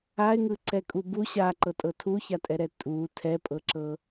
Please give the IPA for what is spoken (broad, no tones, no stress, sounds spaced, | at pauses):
a ɪ̯ ŋ ɯ ǀ ɛ kʼ u b u ɕ a ǃ ɤ tʼ ɤ tʰ u ç a tʼ ɛ ɾ ɛ tʼ u tʰ ɛ pʼ ɤ ǁ ɤ